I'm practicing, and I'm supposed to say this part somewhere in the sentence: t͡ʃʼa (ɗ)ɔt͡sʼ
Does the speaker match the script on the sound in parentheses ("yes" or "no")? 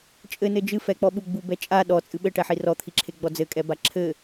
yes